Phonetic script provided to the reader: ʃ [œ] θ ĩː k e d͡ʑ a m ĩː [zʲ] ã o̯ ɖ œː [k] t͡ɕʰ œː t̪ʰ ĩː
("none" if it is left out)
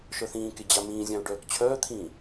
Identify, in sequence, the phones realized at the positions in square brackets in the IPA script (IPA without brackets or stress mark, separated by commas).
œ, zʲ, k